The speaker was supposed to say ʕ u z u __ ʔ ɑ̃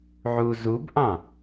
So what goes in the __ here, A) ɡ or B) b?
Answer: B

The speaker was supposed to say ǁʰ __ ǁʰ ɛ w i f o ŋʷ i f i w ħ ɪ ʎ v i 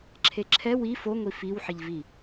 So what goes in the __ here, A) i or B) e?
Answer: B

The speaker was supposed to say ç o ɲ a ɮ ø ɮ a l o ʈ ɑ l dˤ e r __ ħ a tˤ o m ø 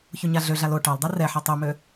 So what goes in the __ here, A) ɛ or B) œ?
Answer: A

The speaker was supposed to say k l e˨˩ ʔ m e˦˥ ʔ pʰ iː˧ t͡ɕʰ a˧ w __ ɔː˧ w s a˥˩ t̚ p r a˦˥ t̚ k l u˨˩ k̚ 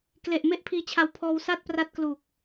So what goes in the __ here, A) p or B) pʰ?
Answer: B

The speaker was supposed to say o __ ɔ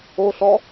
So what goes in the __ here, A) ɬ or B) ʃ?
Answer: A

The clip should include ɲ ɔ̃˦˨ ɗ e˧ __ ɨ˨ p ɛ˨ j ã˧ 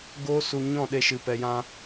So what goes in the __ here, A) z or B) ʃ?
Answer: B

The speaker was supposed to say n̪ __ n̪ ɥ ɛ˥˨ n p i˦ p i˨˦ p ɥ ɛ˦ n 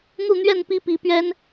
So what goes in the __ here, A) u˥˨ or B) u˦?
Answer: A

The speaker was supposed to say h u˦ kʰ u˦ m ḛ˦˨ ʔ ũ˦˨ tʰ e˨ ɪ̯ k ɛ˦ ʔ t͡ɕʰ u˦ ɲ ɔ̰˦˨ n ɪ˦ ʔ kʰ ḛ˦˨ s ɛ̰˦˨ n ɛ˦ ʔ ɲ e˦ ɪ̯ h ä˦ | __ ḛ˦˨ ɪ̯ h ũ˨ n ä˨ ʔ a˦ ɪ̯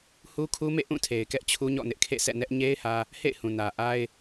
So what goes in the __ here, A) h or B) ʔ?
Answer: A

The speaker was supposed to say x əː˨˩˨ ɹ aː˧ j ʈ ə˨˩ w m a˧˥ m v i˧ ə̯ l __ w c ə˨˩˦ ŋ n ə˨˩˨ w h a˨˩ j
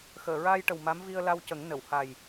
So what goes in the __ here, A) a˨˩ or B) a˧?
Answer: B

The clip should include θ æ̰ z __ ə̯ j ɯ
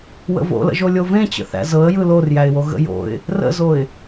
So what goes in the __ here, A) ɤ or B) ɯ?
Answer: A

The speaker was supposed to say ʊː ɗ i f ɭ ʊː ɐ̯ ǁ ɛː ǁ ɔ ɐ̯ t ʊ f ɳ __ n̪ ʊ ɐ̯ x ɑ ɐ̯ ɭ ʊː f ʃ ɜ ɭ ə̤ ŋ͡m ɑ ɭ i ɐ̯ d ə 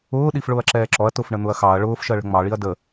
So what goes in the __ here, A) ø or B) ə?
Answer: B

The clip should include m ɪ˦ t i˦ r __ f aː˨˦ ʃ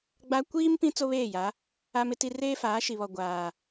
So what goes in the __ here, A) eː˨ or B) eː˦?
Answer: B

